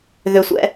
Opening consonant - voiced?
yes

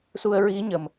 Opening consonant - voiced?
no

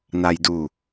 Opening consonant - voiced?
yes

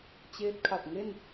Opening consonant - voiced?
no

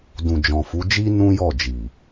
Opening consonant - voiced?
yes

